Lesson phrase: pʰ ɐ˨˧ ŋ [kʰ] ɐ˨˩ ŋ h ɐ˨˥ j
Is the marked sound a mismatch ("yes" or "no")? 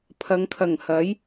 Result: no